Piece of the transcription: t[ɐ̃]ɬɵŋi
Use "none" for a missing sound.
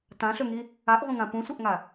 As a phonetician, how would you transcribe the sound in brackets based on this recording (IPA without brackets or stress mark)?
ã